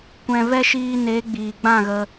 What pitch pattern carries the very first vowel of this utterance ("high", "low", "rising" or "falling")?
low